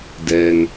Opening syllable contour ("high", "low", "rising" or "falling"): low